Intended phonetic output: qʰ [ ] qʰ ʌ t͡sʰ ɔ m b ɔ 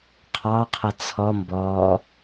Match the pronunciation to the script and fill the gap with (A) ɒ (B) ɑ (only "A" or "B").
B